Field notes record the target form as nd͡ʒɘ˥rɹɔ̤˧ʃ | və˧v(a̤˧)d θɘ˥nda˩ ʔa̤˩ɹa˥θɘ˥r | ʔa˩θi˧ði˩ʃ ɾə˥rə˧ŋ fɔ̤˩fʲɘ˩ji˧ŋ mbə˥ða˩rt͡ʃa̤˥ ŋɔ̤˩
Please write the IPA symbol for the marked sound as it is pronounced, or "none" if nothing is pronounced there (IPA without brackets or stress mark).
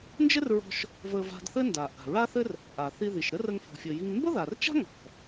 a̤˧